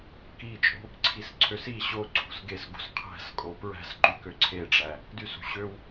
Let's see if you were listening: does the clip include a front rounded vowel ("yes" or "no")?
yes